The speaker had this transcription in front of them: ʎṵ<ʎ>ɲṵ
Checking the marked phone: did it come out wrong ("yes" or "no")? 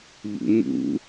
yes